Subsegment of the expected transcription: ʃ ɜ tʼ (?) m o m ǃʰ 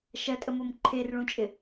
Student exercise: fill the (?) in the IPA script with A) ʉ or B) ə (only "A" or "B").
B